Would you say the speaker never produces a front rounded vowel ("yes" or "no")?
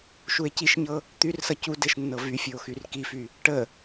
no